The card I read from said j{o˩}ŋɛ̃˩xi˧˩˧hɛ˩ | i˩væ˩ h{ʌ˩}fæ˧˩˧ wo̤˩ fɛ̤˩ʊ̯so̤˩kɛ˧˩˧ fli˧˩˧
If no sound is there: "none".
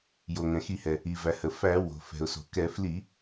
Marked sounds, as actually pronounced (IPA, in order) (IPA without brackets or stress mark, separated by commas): o˩, ə˩